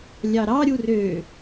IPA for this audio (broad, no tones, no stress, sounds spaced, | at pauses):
lʲ ɑ ɾ ɑ ɾʲ u r ø